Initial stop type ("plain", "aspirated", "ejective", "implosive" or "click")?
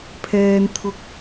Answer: aspirated